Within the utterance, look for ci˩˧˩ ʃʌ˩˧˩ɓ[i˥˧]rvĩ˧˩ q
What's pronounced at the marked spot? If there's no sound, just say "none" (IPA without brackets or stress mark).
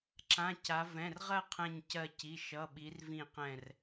i˩˧